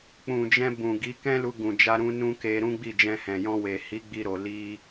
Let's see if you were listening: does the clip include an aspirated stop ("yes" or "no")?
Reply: no